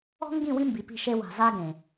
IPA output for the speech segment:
ɔ̤˦ ŋ ɡ ĩ˦˨ w ĩ˦ m b i˨ p i̤˦˨ ʃ e˦ w a̤˨ z a˦ ɡ ẽ˨

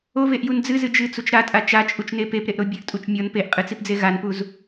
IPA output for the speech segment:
o v e ʔ j u n d͡z ɨ z ɨ d͡ʒ ɨ t͡s u t͡ʃ ɾ a tʼ a t͡ʃ a t͡ʃʼ u t͡ʃ n e p e p ɾ e ʔ ɾ o bʲ ɘ ʔ tʼ u t͡ʃ mʲ ɔ n p e ʔ qʼ ɨ t͡s i p d͡z e ɣ a n p u z

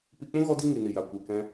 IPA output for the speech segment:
p i˧ k͡p ũ˦ ɣ ɔ˦ d i˦ ŋ i˨ n i˨ j a˨ kʷ e˨ k ɛ̃˧

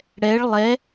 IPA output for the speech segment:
ɽ ɛ ɭ lˠ ɛ

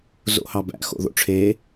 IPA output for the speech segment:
z o̰ h ɑ b æ̰ x o̰ ð o̰ ʈ͡ʂʰ e

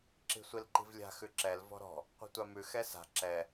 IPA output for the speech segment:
ǁ i̤ sʷ i l ǃ i̤ v lʲ a̤ x ʉ ǁ ɛ l v ɔ̤ ɾ ɔ̤ | qʷ i̤ tʷ a m ʉ x ɛ s a̤ ǁ ɛ

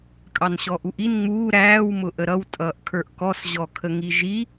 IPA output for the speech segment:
kʼ ɑ n ɕ ɔ ʔ u ʔ i n ŋ͡m uː ɾ æː w m ʊ ʔ ə ɾ ʌ w tʼ ʌː ʔ kʰ ə˞ ʔ k ɔ s ʑ ɔ kʰ ə ŋ i ʒ i

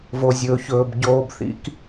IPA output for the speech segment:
v o˨ zʲ ɵː˨ ç ɵː˨ b ɟ oː˧ b θ ḭ˦ k

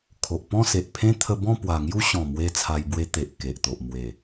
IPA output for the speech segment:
kʰ o˨ ʔ p ɔ̃˥˧ s e˨ ʔ pʰ ẽ˦ t̪ʰ ə˧ b ɔ̃˥˧ p w a˨˩ ŋ j u˦ ɕ ɔ̃˨˩ m w e˦ t͡sʰ a˧ j b w e˦ t̪ e˨ ʔ k e˨ ʔ t̪ o˨ ʔ m w e˨˩

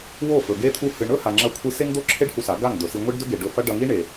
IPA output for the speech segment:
w o˦˨ f ɵ˨ ɡ e˦ t̪ʰ u˦ h ɨ˧ ɳ ɵ˦ h a˨ ŋ͡ǁ ɐ˧ kʷʰ ɨ˧ s e˧ ŋ d̪ o˧ ǁʰ e˧ ɖ h u˧ s a˨˦ ɡ a˦˨ ŋ d̪ ɵ˨ s i˧ ŋʷ i˦ ɖ d ɵ˦ ɡ e˨ ɖ ɵ˧ f ɐ˦ ɖ ɐ˧ ŋ i˦ ɳ e˨

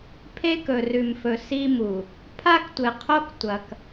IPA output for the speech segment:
pʰ e˦ k ɵ˨ r ʉ˨ m f ɵ˨ s i˦ m u˨ | pʰ a˦ k tʷ ɨ˨ qʰ o˦ k tʷ ɐ˨ k

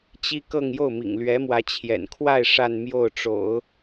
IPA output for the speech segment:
t͡ɕ i˥ k ɤ˥˧ ŋ j o˥˩ ʊ̯ m ḭ˨˩ ŋ l ɥ ɛ˧˥ m w ä˧˥ t͡ɕʰ j ɛ̰˨˩ n kʰ w a˥˧ ɪ̯ ʂ a˥˧ n m j o˥˩ ʊ̯ ʈ͡ʂ o̰˨˩˦ ʊ̯

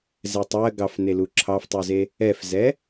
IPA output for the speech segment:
z ɛ tˤ ɜ ɡ ɑ f n e l u ǁʰ ɑ f tˤ u z e | ɛ f z ɛ

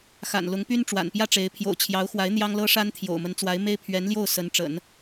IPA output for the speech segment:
x a̰˨˩ n l ʊ˧˥ ŋ p y˥ n ʈ͡ʂ w a̰˨˩ n p j ä˥˩ ʈ͡ʂ e˧˥ ɪ̯ pʰ j o̰˨˩ ʊ̯ t͡ɕʰ j ɑ˧˥ ʊ̯ x w a˧˥ ɪ̯ n̪ j ɑ˥ ŋ l ɤ˥ ʂ a˥ n t̪ʰ j o̰˨˩ ʊ̯ m ə˧˥ n t͡s w a˧˥ ɪ̯ m e˥ ɪ̯ pʰ ɥ ɛ˧˥ n l j o˥˩ ʊ̯ s ə˧˥ n ʈ͡ʂ ə̰˨˩˦ n

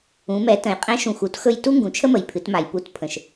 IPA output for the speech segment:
ũ˩˧ m ɛ˩˧ t ə̃˩˧ j qʼ ɛ̃˧˥ ʃ ũ˩ x u˧ t x ɵ˧ j t u˥ ŋ ɡ ũ˩˧ t͡ʃʰ ə˥ m ə˩ j pʰ ɨ˩˧ t m a˩ j p u˧˥ t pʰ ə̃˩ ʃ

